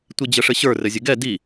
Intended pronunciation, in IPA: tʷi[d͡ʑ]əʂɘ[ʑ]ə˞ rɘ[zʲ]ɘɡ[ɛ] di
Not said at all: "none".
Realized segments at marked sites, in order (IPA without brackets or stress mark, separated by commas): d͡ʑ, ɕ, zʲ, ɛ